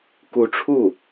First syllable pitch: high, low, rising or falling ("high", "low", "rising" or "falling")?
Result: rising